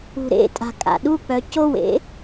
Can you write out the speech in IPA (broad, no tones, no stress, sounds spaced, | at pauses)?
ṳ ɾ ḛ tʼ a̤ kʼ a̰ ɗ u k͡p œ c o w ḛ